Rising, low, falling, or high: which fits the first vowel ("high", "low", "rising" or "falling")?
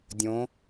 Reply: rising